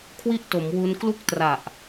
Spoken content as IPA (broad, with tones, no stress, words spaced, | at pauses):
kʰwi˥˩ʔto˩˦mwu˧n klu˥˩k̚tra˨˩ʔ